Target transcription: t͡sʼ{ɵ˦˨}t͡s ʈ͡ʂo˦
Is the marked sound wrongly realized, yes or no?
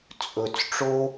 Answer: yes